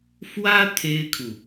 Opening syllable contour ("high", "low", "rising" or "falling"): high